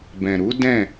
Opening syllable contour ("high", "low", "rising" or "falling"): low